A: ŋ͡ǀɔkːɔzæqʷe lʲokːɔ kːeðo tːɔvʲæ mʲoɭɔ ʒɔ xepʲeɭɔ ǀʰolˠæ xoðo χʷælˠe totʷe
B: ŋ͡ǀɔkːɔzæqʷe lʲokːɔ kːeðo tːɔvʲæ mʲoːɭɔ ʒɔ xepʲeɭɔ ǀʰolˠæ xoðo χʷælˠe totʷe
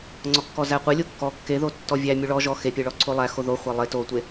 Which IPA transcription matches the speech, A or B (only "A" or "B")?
A